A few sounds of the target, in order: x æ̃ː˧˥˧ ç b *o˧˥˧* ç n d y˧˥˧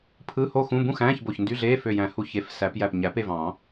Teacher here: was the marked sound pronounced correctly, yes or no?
no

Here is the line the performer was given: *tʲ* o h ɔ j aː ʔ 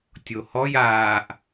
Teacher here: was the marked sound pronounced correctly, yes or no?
yes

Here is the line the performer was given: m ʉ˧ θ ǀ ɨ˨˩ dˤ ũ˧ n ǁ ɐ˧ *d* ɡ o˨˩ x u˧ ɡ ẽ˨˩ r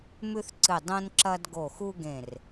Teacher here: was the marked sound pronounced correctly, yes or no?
yes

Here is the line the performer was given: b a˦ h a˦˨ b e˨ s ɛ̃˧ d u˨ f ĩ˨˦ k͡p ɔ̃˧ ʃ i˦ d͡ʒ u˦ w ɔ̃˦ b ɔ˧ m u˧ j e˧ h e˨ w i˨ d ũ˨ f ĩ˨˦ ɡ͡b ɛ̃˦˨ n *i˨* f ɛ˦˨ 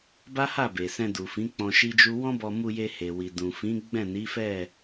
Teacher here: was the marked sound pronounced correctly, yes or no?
no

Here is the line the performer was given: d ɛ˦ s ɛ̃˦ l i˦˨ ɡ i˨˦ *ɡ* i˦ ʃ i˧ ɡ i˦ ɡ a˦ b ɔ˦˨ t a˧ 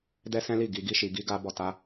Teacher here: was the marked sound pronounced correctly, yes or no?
yes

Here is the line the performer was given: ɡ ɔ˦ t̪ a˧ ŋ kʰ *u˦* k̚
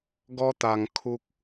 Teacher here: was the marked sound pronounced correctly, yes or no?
yes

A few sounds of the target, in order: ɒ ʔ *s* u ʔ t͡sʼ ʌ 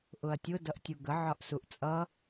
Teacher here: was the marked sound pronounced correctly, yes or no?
yes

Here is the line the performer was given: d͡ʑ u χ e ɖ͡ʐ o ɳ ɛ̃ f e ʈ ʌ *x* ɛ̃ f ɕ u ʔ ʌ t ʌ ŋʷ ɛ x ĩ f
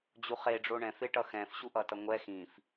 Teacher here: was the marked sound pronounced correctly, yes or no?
yes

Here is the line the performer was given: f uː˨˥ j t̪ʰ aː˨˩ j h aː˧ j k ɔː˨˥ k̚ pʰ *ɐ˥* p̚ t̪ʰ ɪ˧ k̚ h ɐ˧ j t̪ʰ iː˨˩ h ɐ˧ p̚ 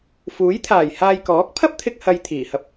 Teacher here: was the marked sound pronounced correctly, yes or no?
yes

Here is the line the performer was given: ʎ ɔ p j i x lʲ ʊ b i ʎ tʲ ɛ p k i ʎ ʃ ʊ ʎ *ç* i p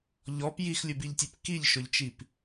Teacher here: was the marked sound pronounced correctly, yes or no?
no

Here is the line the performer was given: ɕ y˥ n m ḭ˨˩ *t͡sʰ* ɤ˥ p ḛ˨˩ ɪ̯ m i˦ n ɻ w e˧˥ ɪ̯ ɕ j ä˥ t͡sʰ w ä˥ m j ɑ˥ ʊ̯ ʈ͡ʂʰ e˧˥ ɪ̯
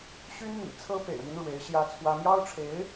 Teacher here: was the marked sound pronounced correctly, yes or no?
yes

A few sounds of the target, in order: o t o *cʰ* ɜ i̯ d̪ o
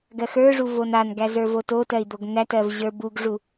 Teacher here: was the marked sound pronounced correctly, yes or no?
no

